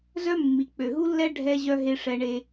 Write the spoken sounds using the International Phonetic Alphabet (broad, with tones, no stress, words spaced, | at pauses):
zœ˦ mːi˨˩k͡pø˨˩ɦu˦lːɛ˦ ɖʱɛ˦ʑœ˦ ɦe˦ʂɛ˦ɳe˦